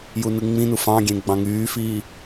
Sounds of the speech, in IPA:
j u n ɯ ŋ͡m ĩ n u f ɑ̃ ɡʲ ẽ ɡ͡b ɑ̃ ŋ yː f iː

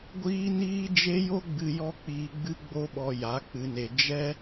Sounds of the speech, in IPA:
ɡʷ iː˦ n iː˦ d͡ʒ e˦ j o˦ ɡ͡b ɨ˧ j ɔ˦ k͡p iː˧ ɡ͡b ɨ˦ ɡ͡b o˦ ɓ ɔ˧ j a˨˦ k͡p ɨ˧ n e˧ d͡ʒ ɛ˦

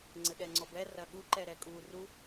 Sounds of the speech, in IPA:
ŋ͡ǀ ɘ ɠ ɛ ŋ͡ǀ ɔ b ɛ r ɐ ɠ u ǃ ɛ ɾ ɛ kʼ u r u

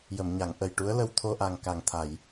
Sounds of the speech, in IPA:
j ə˨˩˨ m ɲ a˨˩˨ ŋ ʔ ə˨˩ j ʈ u˧˥ ə̯ l ə˧ w t̪ʰ o˧ ʔ a˨˩ ŋ k a˨˩ ŋ t̪ʰ a˨˩˨ j

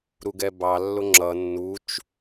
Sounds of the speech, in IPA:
ɾ u ɡ ɛ b ɑ lː ʊ ŋ͡ǁ ʌ nː u t͡ʃ

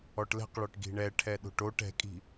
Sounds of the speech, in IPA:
ɔ ʈ l ɛ̤ q ɭ ɔ ʈ ɡ i̤ ɳ ɛ ʈʰ ɛ ɗ o̤ ʈ o ʈ ɛ̤ kʼ i̤

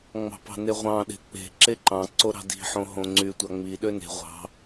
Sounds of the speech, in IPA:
ŋ͡m ɑ̤ p ɑ̤ n e ʁʷ ɑ̃ ɗ e̤ k͡p e̤ ǁ e ǃ ɑ̃ ǀ o ɾ ɑ̤ d i̤ ħ õ ɦ õ ŋ͡ǀ y tʷ ɑ ŋ͡m i ɗ ø n e̤ ʁʷ ɑ̤

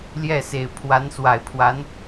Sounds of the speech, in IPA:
l j ɛ˥˩ s e˨˩ ɪ̯ pʰ w a˧˥ n s w a˨˩ ɪ̯ pʰ w a˧˥ n

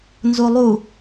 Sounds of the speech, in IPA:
n z u lˠ u

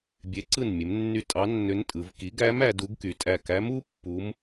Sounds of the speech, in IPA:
bʲ e˩˥ ǀ ɯ˧˩ n mʲ e˩˧ m nː y˧˩ tʼ ɑ˧˥ nː ø˧˥ n tʼ ɯ˩˧ v k i˩˥ ɡ æ˧˥ m æ˩˧ d u˧˥ ɡ k y˩˧ tʼ æ˧˩ k æ˧˥ m u˧˥ pː u˧˥ m

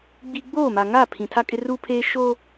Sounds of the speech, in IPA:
ɡ͡b i˦ ɡ͡b oː˦˨ m a˨ ŋ aː˦˨ pʰ ĩ˨ tʰ a˦ kʼ ɪ˦ r u˦ pʰ eː˦ ʃ o˦

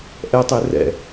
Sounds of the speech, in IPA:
ʔ ɛ tˤ e r ɛ̰

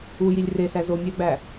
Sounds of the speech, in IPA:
u j i lʲ r e s æ z o mʲ æ ɡ͡b æ

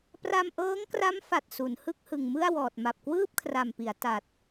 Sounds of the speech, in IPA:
p r a˧ m ʔ ɤː˦˥ ŋ k r a˦˥ m f a˨˩ t̚ s u˩˦ n h ɯ˥˩ k̚ h ɯ˨˩ ŋ m ɯ˥˩ a̯ w ɔː˨˩ t̚ m a˨˩ p̚ k w ɯː˥˩ p̚ kʰ r a˨˩ m p i˩˦ a̯ t a˨˩ t̚

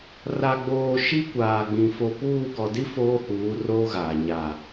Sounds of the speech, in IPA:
r a˨ ɡ͡b oː˨ ʃ i˦ kʷ aː˨ ɡ͡b ĩ˨ f o˨ p uː˦˨ ɡ ɔ˨ d i˦ f oː˦ h uː˨˦ r oː˦ ɣ aː˨ ɲ a˨

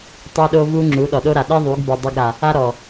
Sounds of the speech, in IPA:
tˤ e˦ ɗ o˦ v u˦ ŋ͡ǁ u˨˦ ɗ ɔ˨ ɗ o˦ ɾ a˨ ɗ i˦ ðˤ u˨˦ ɡ b ɛ˨ dˤ o˧ ɡ ɾ a˨ | a˦ ɾ ɔ˨

